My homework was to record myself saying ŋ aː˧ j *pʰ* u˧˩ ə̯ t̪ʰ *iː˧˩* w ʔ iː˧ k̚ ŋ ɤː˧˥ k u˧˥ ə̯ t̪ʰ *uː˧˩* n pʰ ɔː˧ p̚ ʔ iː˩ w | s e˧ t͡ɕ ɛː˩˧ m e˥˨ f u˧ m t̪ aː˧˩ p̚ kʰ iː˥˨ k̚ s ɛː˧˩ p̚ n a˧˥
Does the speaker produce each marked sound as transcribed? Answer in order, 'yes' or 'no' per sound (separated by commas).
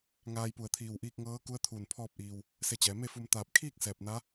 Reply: no, yes, yes